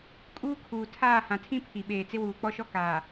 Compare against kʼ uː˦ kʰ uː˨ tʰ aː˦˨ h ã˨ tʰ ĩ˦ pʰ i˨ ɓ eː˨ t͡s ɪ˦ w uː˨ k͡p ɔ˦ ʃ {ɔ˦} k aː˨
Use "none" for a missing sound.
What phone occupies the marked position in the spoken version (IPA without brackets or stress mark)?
ɔ˦